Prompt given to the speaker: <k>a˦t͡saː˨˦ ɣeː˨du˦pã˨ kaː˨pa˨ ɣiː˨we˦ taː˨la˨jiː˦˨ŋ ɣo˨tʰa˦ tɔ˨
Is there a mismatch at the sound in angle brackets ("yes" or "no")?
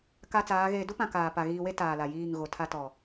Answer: no